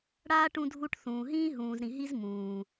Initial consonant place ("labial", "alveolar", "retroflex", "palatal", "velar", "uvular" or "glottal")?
retroflex